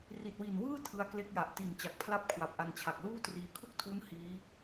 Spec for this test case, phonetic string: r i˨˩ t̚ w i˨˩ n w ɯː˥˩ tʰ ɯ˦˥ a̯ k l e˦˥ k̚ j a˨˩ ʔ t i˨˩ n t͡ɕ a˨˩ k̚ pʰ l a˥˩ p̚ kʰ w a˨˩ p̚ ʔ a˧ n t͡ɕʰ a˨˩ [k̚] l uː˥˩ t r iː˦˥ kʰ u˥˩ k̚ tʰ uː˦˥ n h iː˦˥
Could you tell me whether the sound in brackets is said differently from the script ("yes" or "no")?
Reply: no